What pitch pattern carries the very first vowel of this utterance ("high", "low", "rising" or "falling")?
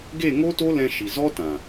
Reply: falling